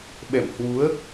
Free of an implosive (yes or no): no